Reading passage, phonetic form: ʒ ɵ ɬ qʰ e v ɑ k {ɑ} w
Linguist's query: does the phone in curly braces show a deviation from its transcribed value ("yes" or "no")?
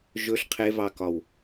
yes